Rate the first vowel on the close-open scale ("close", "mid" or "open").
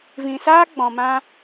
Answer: close